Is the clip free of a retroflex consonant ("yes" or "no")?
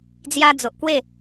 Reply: yes